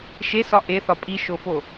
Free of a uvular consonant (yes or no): yes